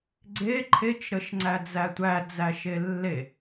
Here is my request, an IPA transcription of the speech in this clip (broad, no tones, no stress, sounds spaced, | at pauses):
ɡ͡ǀ e ǃʰ e t͡ʃ ɾ ə ʃ ŋ͡ǀ æ d͡z æ tʷ æ d͡z æ ʃ e lː e